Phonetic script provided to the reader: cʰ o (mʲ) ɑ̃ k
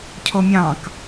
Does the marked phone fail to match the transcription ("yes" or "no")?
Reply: no